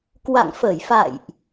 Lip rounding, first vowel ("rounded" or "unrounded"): unrounded